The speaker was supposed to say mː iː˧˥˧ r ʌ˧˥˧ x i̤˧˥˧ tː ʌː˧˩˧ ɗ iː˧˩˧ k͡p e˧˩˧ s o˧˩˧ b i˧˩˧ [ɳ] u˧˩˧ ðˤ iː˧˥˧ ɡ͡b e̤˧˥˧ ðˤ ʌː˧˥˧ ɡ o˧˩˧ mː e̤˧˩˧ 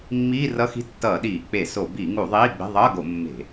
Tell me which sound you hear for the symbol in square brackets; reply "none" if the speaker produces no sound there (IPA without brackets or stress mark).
ŋ